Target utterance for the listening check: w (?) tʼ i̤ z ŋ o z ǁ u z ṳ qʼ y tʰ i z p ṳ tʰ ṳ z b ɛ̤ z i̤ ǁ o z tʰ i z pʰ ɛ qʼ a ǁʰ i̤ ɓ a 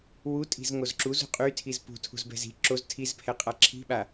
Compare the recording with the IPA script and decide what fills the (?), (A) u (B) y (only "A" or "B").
A